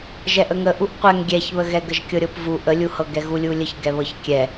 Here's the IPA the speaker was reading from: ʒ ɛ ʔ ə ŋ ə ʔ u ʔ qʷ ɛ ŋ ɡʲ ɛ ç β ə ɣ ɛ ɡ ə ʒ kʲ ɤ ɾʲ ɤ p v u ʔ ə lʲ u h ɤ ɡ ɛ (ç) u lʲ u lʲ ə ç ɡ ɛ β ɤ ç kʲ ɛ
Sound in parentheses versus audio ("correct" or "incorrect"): incorrect